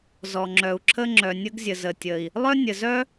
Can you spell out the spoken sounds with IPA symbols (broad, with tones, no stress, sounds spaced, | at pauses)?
z ɔ˩ ŋ͡ǁ œ˩ u̯ ǁʰ ə˥ ŋ͡ǁ œ˩ nʲ ə˥ ɡ zʲ ə˩ z ə˩ tʲ ə˩ i̯ | lˠ œ˥ nʲ ə˩ z œ˥